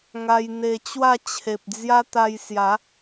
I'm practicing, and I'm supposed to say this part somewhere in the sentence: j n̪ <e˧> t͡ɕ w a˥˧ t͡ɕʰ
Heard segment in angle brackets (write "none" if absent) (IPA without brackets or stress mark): e˧